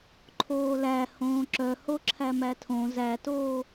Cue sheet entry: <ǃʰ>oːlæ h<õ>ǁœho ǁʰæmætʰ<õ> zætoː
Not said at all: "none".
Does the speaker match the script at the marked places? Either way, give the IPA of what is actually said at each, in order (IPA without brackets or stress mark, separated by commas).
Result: ǃʰ, õː, õ